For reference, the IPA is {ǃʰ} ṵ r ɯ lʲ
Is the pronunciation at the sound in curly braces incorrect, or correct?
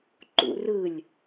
incorrect